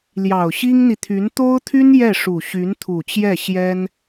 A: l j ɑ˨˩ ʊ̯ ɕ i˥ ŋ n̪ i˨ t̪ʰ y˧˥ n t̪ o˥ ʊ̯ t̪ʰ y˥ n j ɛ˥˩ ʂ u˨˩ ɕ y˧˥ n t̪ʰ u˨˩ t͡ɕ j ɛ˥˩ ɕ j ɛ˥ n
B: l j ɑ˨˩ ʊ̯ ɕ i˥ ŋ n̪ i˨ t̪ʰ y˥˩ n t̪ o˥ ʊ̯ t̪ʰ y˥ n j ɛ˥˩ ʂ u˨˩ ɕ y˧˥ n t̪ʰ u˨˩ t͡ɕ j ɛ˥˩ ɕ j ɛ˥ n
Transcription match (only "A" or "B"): A